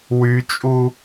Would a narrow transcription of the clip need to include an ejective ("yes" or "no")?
yes